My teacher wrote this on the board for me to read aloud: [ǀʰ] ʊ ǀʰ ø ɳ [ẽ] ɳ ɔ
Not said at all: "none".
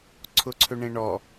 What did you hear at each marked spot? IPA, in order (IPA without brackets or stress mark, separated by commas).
ǀʰ, ẽ